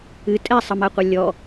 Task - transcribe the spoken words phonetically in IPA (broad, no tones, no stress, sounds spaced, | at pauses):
ɨ tʼ ɛ sˤ ə m a qʷ ɐ lʲ ɔ